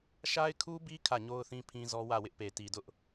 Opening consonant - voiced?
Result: no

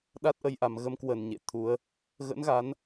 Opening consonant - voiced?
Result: yes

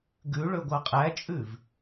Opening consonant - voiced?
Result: yes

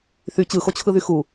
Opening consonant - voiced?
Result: no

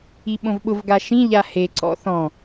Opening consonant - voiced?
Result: yes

